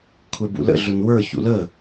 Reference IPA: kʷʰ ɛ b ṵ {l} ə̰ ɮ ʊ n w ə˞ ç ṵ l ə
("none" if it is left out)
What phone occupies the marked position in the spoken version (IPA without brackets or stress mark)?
l